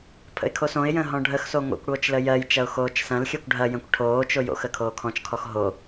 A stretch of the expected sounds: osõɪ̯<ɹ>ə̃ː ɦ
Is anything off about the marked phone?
yes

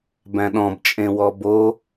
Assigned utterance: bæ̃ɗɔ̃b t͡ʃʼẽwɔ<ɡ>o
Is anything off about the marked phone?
yes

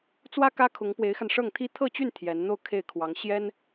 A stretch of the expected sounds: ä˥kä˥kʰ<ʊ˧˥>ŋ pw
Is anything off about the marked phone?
no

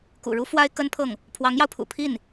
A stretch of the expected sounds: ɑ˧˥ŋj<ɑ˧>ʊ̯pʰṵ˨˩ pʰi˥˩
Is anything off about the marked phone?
no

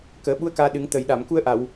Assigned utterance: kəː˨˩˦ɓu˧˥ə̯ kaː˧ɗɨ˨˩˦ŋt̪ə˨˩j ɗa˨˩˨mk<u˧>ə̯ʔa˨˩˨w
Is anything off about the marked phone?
no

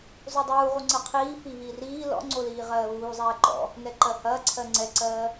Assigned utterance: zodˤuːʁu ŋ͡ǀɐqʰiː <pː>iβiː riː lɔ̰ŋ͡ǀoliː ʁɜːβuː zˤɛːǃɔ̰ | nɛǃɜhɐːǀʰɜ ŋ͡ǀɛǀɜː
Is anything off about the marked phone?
yes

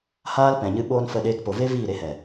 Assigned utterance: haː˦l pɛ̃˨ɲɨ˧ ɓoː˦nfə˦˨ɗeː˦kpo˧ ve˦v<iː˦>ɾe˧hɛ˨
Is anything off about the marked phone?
yes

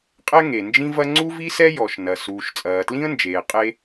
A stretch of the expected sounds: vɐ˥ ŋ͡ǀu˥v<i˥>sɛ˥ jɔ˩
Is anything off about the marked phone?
no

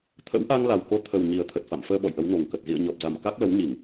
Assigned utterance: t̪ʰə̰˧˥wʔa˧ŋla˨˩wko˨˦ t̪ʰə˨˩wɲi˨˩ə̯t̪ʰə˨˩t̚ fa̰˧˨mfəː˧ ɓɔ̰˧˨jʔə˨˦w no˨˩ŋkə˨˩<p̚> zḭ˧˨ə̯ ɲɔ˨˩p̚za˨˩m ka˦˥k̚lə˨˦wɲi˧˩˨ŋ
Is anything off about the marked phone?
yes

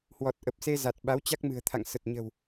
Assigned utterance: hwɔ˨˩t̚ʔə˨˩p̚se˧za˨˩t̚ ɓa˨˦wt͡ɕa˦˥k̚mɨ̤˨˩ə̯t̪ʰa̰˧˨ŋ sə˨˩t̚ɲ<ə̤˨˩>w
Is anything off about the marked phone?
no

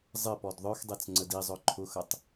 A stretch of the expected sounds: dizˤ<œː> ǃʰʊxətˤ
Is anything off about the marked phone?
yes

